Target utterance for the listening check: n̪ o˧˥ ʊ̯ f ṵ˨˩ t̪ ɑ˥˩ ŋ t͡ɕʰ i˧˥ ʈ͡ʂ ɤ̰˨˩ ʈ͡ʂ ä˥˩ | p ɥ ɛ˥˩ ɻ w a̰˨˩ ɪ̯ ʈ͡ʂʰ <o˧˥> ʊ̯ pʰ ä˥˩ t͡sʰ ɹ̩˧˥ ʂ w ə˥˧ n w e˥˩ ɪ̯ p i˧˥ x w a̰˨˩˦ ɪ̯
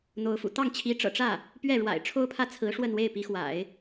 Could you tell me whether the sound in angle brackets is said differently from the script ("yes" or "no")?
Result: yes